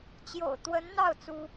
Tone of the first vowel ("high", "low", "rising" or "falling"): low